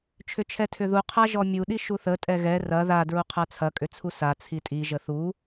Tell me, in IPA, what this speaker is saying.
t͡ʃʰ ʏ t͡ʃʰ ɛ tʰ ʏ ð u qʰ a ʒ ɔ mʲ u ɗ i ʃ u θ ə tʼ ɛ ɣ ɛ r ɐ ð a d ɹ u qʰ a t͡sʰ ɐ kʼ ʏ t͡sʰ u s a t͡sʰ i tʼ i ʒ ə θ u

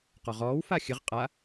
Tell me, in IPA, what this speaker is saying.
q ɔ ʁ ɔː w f a xʲ ɨ ʁ qʼ a

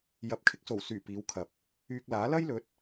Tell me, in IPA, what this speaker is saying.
j ɐ˨˥ p̚ kʰ ɪ˧ k̚ s o˨˩ w s yː˨˩ p iː˨˧ w kʰ ɐ˨ p̚ | yː˧ k̚ l aː˨˥ l ɐ˥ j l ɵ˨˥ t̚

